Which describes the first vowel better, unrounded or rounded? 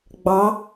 unrounded